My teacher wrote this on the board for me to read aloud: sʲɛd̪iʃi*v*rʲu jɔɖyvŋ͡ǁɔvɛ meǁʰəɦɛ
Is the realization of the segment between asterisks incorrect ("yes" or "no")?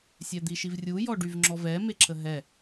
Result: no